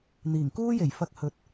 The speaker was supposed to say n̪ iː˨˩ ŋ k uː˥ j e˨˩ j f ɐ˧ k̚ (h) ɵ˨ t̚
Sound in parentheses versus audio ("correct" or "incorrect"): correct